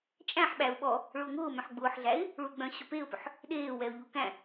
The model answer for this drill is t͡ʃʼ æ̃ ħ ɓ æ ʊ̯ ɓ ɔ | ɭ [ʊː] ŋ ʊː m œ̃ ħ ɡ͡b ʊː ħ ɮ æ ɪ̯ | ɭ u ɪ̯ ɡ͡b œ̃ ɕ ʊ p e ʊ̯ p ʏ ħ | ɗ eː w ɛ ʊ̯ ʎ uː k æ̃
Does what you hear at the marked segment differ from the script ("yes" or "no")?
no